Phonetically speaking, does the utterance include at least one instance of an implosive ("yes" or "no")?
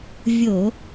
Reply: no